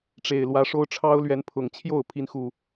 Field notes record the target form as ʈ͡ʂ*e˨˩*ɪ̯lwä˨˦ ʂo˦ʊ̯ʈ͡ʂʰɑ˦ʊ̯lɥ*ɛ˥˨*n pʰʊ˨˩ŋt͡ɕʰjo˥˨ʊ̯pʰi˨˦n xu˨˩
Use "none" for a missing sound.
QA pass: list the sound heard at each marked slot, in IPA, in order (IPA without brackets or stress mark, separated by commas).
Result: e˨˩, ɛ˨˦